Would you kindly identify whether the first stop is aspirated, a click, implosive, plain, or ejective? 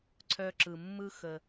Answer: click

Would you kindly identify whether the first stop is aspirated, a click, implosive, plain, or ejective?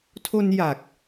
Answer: aspirated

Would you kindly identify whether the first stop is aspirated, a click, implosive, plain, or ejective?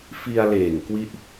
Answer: plain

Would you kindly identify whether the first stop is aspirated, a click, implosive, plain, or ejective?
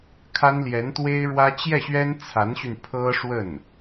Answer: aspirated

